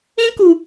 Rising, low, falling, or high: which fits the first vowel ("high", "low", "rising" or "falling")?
high